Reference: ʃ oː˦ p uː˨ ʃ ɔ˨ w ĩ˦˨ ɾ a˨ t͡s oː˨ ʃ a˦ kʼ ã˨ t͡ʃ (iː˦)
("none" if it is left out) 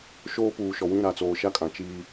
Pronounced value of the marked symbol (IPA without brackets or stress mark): iː˦